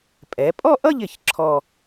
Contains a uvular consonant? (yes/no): no